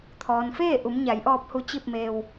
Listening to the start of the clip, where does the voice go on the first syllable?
low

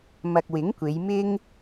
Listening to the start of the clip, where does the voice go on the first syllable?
low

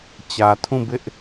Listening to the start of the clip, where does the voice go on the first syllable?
low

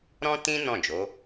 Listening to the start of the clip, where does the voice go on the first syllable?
high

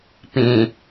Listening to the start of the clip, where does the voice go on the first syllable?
low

